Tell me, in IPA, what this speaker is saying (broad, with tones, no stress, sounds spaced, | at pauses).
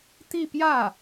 t̪ i˥˧ p j ä˥˩